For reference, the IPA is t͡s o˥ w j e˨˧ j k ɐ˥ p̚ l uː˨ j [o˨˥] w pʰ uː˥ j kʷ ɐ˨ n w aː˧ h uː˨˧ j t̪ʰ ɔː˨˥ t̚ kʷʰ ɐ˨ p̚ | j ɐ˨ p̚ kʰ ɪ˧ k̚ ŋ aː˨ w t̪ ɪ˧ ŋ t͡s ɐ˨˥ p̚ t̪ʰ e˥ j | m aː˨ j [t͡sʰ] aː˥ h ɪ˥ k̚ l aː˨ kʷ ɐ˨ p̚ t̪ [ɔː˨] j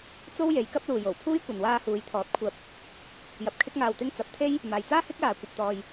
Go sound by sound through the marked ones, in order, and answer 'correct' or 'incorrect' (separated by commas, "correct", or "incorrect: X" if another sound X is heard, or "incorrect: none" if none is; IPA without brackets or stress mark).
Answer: incorrect: o˨˩, incorrect: t͡s, correct